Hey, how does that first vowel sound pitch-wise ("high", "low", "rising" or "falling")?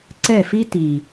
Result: falling